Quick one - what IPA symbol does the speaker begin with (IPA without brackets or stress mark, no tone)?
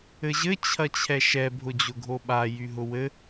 ɘ